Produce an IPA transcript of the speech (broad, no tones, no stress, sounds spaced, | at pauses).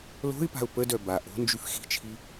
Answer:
l o̤ ɪ̯ p a̤ ʊ̯ p ə d œ b a ʔ o̤ n d͡ʒ y f x i̤ t͡ʃʰ i